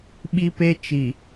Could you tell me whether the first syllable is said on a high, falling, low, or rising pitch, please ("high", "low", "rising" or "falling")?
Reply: high